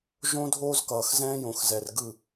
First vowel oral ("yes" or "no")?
no